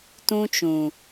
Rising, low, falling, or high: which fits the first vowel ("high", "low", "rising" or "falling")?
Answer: high